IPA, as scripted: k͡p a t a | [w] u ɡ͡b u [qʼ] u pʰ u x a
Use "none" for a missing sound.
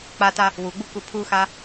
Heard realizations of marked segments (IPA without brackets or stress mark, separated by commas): w, k